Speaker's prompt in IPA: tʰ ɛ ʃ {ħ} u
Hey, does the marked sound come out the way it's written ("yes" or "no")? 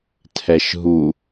no